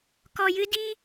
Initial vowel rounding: rounded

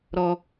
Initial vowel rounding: rounded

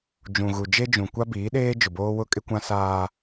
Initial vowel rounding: rounded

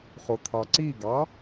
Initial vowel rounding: rounded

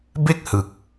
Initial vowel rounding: unrounded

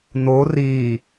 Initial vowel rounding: rounded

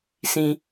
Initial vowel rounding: unrounded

